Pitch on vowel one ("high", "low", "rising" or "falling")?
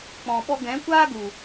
low